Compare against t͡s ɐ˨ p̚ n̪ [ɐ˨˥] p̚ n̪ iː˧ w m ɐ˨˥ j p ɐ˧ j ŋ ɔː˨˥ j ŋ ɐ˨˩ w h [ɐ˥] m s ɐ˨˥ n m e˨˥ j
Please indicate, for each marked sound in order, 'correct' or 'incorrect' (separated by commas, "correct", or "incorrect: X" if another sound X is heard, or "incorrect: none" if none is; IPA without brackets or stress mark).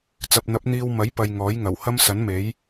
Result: correct, correct